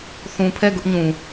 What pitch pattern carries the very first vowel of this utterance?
low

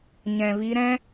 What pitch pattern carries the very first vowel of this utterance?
low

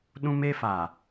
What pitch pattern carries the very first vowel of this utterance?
high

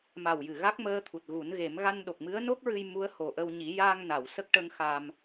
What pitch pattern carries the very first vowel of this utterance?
low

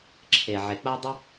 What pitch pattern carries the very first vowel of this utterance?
low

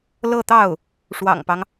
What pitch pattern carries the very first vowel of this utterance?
falling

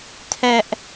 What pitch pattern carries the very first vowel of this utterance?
high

